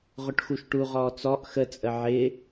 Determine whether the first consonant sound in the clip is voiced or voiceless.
voiced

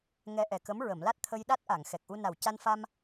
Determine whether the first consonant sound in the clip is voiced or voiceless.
voiced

